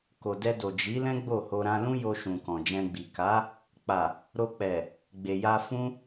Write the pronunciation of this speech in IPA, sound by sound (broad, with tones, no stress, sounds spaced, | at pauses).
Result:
k o˨ d ɛ˧ d o˨ d͡ʒ i˨˦ l ɛ̃˦ ɡ͡b o˦˨ h o˧ ɾ ã˧ l ũ˦ j o˧ ʃ ũ˨ k ɔ̃˨ d͡ʒ ɛ̃˧ ɡ͡b i˨ k a˨˦ | k͡p a˨ | ɾ o˧ k͡p ɛ˨ | ɡ͡b e˨ j a˧ f ũ˦